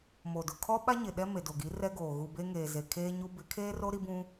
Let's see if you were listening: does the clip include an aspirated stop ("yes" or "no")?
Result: yes